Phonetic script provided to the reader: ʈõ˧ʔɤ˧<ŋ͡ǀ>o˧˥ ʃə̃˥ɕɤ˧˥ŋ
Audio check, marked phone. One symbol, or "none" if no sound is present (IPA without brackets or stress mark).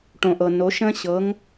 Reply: n